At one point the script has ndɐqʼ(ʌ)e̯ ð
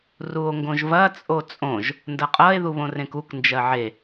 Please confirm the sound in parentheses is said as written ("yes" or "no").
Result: yes